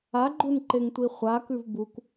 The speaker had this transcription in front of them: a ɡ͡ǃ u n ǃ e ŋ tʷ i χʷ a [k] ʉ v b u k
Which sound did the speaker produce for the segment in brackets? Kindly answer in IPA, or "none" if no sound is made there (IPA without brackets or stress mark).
k